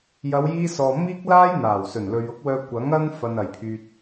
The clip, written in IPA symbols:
j ɐ˨˧ w j iː˧ s ɔː˨ m iː˥ k̚ l aː˥ j n̪ aː˨˩ w s ɵ˨˩ n l ɵ˨ ɥ ʊ˥ k̚ w œː˧ kʷ ɐ˨˥ ŋ ɐ˥ n f ɐ˧ n ɐ˨ j pʰ yː˧ t̚

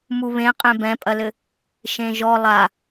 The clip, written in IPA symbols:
m u β ẽ qʼ ẽ b ɛ̃ pʼ ɐ l ɘ | ʃ ẽ ʒ ɔ lˠ a

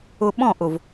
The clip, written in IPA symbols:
ʊ˨ ɓ ɔ̃˦˨ ʔ ʊ˨ v

